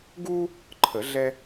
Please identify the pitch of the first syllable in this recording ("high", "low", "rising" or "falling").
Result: high